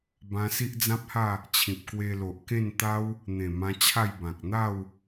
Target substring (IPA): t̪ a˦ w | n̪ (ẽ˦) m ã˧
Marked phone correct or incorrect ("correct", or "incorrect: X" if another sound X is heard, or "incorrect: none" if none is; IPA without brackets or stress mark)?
incorrect: ẽ˨˩